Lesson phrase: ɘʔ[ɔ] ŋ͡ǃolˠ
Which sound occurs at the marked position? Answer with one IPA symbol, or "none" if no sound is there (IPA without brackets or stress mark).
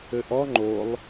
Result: ɔ